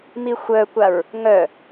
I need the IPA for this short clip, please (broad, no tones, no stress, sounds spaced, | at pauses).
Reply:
m i xʷ œ kʷ a ɹ | ŋ œ